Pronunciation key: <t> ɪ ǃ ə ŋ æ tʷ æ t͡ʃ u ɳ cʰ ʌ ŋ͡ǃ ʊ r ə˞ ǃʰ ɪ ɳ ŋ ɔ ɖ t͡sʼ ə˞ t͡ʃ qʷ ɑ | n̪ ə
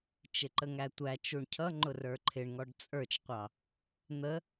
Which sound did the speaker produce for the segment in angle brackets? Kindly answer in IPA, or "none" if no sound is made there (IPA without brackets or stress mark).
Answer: t͡ʃ